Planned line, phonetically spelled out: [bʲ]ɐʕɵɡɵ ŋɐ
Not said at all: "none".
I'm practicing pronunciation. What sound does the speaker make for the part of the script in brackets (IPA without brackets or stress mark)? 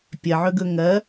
pʲ